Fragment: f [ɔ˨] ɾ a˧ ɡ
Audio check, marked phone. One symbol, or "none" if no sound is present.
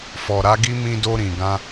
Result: ɔ˨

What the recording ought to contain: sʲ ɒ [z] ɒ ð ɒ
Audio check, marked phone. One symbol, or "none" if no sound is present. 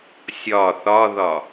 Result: θ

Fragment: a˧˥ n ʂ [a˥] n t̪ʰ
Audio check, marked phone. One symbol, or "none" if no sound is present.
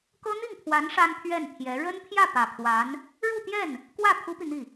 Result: a˥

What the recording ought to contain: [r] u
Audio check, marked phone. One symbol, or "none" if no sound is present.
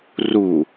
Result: r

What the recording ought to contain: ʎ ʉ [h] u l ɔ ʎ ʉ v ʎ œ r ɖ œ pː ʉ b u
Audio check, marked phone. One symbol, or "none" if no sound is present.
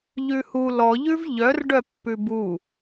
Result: h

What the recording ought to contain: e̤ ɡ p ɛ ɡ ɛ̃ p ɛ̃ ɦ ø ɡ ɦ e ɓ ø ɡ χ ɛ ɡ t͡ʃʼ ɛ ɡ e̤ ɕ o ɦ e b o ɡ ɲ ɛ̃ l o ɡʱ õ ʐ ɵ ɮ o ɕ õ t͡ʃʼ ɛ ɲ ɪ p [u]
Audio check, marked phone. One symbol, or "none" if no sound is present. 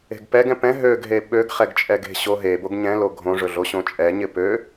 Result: ø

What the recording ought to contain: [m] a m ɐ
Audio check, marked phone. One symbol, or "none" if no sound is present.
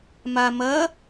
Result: m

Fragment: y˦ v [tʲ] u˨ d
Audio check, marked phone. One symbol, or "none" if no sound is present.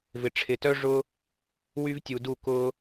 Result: tʲ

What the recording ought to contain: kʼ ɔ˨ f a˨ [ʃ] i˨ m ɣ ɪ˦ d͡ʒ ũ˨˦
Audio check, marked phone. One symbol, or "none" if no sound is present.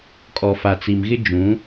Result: t͡s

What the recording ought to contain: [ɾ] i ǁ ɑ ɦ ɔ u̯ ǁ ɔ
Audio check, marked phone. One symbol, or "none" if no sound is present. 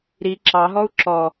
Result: ɾ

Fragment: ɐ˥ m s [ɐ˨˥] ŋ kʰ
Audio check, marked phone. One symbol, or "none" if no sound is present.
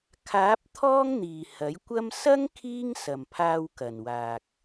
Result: ɐ˥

